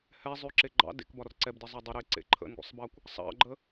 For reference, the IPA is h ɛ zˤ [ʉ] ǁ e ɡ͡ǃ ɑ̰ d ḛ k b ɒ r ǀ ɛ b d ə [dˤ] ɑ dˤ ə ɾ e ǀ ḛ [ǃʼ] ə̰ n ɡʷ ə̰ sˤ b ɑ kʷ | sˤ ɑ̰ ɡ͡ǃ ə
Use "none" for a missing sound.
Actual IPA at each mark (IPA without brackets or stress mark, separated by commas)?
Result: ʉ, zˤ, ǃʰ